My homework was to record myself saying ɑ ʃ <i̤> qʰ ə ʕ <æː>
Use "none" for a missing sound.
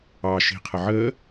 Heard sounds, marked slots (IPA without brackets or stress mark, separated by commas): i̤, əː